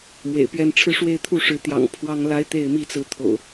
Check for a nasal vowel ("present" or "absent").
absent